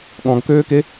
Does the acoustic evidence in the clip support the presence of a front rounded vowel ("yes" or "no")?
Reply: yes